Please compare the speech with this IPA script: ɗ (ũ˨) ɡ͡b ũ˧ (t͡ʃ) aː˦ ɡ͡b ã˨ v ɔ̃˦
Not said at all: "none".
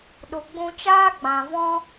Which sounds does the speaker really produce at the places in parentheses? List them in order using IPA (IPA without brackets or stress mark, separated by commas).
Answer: u˨, t͡ʃ